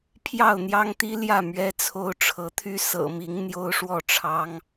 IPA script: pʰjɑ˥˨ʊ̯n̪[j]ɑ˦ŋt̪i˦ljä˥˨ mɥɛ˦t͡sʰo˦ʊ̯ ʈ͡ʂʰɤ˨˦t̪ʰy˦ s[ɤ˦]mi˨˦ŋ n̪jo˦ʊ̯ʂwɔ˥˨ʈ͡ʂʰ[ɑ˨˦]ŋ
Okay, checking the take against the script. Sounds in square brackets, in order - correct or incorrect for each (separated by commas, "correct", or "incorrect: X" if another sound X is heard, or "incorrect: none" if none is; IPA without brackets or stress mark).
correct, incorrect: ɤ̰˨˩, incorrect: ɑ˦